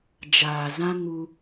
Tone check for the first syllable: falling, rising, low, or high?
low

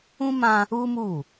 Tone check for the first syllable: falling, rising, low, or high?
high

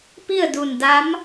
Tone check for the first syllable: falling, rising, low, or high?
falling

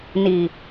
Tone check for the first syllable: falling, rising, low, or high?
low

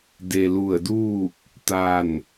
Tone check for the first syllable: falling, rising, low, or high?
low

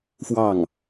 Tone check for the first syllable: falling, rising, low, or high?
falling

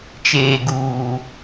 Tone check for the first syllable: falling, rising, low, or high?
low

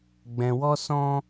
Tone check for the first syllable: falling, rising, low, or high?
low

